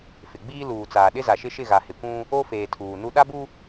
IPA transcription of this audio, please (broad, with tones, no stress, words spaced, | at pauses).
fɪ˨ɡ͡biː˦ luː˨t͡saː˨ɗɪ˦ za˨ʃɪ˦ ʃɪ˦˨ɣa˨ hɪ˨kʷũ˦ | o˦feː˨ tʰuː˨nu˦ ɗa˦bu˦